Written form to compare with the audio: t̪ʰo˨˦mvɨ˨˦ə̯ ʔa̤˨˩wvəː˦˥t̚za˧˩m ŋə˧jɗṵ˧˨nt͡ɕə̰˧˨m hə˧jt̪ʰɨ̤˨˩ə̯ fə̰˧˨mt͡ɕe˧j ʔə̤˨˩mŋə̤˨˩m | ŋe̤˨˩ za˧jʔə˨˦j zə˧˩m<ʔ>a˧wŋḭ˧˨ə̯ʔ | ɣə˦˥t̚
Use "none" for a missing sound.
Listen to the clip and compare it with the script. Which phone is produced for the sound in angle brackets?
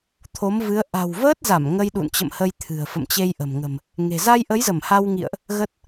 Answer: h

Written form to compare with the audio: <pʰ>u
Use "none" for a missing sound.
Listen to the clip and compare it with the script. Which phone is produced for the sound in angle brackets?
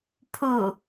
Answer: pʰ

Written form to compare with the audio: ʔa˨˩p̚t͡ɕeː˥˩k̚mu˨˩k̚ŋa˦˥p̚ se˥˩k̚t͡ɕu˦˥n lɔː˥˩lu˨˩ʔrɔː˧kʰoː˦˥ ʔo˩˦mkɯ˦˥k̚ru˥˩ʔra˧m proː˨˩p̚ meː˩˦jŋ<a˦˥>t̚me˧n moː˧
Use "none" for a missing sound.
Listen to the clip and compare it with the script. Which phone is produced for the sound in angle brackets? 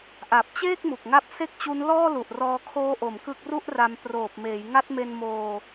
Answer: a˦˥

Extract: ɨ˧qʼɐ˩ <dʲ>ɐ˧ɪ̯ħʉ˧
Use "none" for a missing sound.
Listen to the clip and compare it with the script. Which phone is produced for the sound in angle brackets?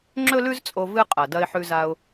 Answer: d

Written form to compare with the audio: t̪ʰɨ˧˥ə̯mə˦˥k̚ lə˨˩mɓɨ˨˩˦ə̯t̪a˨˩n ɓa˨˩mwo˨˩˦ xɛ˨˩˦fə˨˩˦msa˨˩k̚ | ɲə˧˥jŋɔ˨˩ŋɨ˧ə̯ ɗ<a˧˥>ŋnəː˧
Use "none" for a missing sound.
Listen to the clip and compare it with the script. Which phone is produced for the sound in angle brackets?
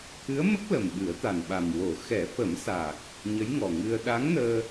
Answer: a˧˥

